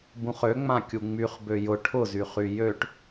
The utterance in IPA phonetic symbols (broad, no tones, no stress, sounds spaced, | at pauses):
b ũ χ ø ŋ͡m ã kʲ u ŋ͡m y χ b ø j ʊ ʈʰ ʊ z y χ y j ø ʈ